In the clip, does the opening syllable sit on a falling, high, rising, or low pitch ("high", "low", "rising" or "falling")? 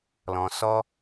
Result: low